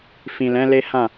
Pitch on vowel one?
low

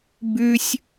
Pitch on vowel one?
high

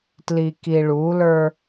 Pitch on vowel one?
low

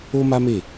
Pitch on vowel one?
high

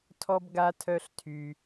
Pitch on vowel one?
high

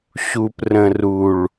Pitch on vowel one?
low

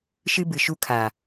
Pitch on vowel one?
high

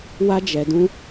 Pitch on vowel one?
high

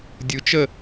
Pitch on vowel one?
rising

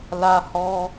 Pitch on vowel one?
high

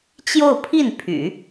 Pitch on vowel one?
falling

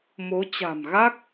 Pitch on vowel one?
rising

